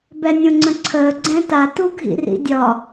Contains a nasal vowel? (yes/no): yes